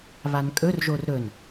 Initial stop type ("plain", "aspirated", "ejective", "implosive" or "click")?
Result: ejective